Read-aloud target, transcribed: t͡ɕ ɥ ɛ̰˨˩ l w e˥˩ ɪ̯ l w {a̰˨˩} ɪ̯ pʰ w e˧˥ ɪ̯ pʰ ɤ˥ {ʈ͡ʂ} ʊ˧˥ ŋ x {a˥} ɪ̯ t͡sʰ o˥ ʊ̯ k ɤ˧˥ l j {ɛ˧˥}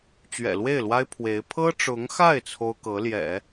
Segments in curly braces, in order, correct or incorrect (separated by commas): incorrect, correct, incorrect, incorrect